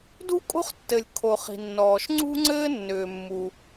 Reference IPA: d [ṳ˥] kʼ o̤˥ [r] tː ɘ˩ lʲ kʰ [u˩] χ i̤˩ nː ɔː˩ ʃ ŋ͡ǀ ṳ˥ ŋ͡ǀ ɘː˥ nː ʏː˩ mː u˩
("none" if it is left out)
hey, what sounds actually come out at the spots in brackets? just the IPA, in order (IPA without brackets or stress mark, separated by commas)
ṳ˥, χ, o˩